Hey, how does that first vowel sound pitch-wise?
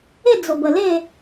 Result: falling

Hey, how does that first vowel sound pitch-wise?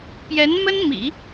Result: rising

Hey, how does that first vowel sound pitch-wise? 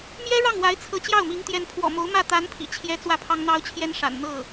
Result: high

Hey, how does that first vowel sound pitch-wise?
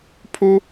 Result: high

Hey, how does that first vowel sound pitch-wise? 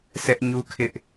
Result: high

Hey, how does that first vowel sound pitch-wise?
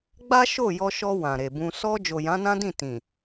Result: high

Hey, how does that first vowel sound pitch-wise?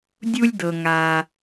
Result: high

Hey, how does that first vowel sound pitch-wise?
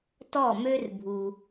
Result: falling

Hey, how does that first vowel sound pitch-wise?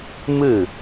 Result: falling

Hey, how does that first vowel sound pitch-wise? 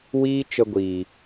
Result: high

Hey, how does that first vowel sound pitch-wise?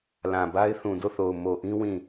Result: low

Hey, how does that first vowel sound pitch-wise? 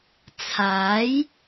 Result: rising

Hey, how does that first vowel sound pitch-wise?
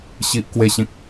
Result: high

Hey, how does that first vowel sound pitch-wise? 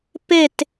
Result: falling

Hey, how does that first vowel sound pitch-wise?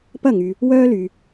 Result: falling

